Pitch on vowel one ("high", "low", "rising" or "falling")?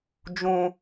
high